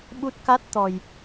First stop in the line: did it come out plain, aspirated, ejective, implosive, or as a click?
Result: implosive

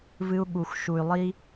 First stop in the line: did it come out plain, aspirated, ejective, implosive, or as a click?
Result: implosive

